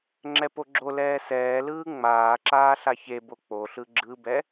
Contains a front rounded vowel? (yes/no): no